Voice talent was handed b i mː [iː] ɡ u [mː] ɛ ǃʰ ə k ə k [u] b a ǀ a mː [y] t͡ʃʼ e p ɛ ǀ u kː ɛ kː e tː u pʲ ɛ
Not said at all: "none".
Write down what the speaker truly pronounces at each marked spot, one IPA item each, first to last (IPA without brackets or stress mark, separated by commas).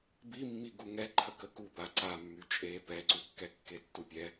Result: i, ŋ, u, y